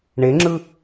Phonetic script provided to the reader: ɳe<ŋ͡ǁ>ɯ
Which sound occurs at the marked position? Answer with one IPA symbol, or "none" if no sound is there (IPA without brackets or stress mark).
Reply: ŋ͡ǁ